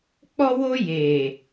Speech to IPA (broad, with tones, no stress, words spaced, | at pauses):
k͡pɔ˧wo˧ je˨